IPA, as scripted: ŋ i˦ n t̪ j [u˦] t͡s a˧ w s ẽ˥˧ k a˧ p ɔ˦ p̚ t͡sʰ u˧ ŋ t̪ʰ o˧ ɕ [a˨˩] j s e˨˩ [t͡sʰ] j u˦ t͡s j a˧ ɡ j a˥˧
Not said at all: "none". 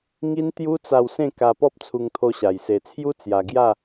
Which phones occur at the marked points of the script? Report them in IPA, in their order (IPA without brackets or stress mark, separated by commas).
u˦, a˨˩, t͡sʰ